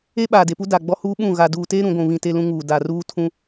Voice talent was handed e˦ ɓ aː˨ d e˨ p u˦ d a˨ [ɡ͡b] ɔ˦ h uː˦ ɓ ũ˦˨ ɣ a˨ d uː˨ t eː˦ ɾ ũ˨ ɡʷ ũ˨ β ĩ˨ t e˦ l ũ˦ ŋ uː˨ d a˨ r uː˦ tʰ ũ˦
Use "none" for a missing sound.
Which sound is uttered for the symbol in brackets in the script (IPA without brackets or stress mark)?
ɡ͡b